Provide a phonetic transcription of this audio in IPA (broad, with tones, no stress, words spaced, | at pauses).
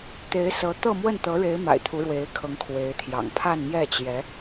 t̪e˧˥ɪ̯sɤ˧˥ t̪ɤ˥˧mwə˥˩nt̪ɤ˧˥ɻe˧˥ɪ̯ ma̰˨˩ɪ̯t̪ʰu˧˥ɻwe˧˥ɪ̯kʰɤ˧˥ŋ kʰwe˧˥ɪ̯t̪ʰjɑ̰˨˩ŋ pʰa˥˧nmjɛ˥˩t͡ɕjɛ˧˥